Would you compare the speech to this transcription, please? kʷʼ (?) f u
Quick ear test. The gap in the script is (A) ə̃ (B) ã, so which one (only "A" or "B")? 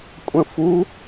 A